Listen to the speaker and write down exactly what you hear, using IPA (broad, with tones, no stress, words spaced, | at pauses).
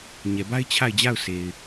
ɲɛ˨ba˦ɪ̯ t͡ɕʰa˦˨ɪ̯d͡ʑa˦˨ʊ̯ se˨ɪ̯